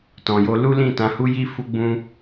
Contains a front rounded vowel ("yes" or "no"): no